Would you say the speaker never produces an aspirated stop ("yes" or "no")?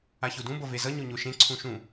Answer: no